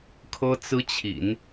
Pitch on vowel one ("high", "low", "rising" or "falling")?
high